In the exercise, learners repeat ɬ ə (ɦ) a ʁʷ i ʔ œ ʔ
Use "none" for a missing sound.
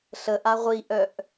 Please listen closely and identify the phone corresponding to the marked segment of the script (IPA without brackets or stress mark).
ʔ